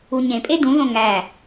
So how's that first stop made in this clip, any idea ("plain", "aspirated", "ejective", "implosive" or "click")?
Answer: ejective